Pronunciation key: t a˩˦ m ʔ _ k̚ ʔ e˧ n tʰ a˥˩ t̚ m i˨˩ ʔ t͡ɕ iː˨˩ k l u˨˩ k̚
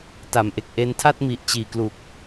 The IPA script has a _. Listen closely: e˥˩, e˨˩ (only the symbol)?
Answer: e˨˩